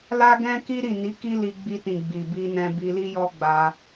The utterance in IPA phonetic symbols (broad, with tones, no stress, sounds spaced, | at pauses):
l a˦ ɡ ɛ̃˦ k i˦ ɾ i˦˨ n i˨˦ k i˦ l i˧ ɡ͡b i˧ t ĩ˨ ɡ͡b i˨ b i˧ n ɛ̃˧ b i˧ l i˦ j ɔ˦ ɡ͡b a˧